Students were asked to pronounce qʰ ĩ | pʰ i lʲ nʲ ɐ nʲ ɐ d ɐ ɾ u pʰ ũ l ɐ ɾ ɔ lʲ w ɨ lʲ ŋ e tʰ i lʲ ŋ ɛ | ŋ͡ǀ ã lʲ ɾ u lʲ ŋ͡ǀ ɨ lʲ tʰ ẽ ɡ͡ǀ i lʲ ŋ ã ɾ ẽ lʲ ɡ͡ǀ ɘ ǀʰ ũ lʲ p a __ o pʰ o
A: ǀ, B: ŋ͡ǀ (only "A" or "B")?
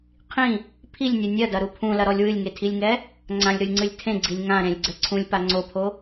B